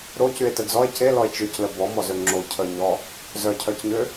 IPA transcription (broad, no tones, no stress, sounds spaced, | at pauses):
ɾ o c y e̯ t ə d͡z ɔ e̯ c e l ɔ e̯ t͡ʃ y c l ə b ɔ m ɔ z ø ŋ͡ǁ o cʰ ə ɲ ɔ | z œ cʰ œ c ɲ ø